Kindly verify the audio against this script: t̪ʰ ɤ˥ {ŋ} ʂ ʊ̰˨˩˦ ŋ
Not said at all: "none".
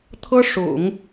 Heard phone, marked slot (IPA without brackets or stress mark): none